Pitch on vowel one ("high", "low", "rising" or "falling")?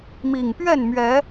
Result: low